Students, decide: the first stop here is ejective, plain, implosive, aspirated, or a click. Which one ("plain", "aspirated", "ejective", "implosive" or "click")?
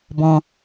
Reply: plain